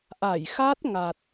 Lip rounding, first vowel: unrounded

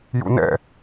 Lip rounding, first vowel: rounded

